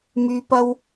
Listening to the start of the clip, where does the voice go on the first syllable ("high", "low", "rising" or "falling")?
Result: low